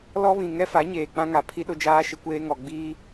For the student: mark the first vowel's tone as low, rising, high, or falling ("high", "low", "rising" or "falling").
high